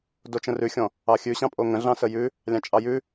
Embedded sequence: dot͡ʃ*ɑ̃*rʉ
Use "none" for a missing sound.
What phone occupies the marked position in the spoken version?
ə̃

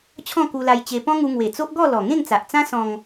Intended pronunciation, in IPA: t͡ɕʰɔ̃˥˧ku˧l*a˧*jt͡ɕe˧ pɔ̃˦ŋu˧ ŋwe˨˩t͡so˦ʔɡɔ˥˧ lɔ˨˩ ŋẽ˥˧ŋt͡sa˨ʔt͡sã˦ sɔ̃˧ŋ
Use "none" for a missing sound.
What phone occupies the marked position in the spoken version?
a˧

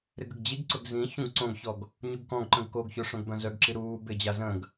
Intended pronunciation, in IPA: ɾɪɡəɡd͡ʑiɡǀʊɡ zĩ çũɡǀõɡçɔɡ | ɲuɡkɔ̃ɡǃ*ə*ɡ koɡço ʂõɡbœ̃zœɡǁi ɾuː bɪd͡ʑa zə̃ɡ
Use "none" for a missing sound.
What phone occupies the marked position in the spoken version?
ə̃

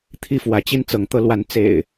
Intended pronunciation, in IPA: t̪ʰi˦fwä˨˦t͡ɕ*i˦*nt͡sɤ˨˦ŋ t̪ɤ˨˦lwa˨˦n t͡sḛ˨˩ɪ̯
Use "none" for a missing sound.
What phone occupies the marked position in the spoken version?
i˦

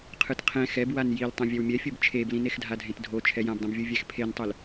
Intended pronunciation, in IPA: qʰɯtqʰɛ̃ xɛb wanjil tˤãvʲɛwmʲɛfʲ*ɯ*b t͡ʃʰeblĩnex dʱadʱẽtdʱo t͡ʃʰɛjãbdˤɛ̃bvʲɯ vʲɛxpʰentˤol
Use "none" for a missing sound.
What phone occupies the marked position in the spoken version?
ɯ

